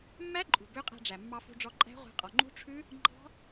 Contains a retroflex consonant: yes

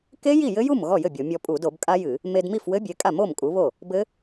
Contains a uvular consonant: no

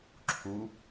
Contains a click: yes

